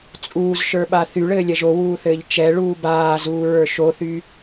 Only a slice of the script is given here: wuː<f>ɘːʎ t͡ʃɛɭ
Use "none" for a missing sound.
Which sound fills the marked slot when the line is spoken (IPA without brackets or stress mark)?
θ